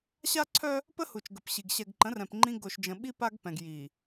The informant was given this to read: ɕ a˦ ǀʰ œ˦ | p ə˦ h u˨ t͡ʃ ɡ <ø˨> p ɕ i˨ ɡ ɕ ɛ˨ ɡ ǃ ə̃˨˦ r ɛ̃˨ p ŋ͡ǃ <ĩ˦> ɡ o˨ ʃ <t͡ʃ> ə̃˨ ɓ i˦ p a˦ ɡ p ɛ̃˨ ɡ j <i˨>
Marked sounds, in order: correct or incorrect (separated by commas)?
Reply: incorrect, correct, incorrect, correct